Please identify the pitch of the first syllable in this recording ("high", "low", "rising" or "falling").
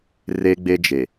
high